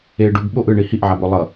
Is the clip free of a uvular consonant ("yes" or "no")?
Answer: yes